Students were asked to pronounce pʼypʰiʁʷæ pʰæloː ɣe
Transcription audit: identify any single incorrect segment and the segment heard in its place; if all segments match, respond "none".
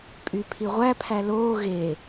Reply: none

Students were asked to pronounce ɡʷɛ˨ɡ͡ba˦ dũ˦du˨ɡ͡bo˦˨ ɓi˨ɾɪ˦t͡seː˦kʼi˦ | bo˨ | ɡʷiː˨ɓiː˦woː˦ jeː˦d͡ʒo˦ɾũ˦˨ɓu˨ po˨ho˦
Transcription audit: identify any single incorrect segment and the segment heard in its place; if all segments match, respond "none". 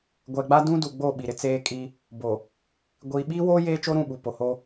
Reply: d͡ʒ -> t͡ʃ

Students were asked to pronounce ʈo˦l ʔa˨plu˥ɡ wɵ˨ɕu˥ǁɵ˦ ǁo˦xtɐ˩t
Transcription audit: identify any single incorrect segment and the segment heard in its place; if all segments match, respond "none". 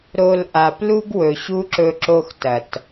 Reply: ʈ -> ɾ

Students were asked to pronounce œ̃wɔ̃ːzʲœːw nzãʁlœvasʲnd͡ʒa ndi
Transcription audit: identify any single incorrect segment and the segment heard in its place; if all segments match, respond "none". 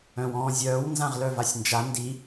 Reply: none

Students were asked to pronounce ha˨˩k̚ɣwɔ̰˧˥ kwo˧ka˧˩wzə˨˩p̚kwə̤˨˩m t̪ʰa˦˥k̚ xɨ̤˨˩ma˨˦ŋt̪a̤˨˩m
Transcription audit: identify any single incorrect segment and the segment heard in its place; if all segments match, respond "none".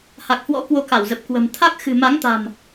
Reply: ɣ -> h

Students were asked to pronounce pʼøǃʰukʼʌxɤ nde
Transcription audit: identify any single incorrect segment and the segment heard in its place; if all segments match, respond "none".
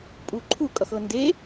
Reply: ø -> u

